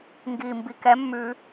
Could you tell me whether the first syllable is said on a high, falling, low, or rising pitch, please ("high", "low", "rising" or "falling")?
low